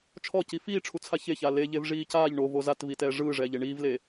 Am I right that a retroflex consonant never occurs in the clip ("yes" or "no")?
no